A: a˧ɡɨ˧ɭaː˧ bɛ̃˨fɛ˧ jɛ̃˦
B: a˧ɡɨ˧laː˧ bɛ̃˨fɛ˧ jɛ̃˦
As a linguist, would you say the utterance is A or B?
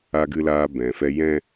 B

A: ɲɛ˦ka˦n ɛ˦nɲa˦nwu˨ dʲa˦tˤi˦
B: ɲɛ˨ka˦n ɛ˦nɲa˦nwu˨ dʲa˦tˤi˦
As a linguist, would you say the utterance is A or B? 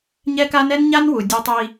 A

